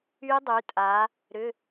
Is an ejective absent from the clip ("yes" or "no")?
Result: no